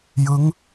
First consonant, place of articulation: palatal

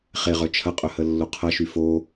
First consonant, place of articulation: uvular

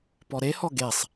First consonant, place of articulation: labial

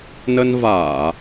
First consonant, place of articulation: alveolar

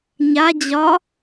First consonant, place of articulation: palatal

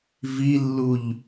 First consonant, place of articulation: labial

